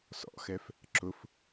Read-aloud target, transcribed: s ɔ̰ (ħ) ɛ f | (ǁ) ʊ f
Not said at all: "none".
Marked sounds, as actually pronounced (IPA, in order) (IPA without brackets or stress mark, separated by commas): x, ǁ